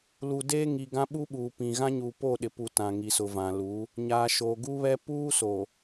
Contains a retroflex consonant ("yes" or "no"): no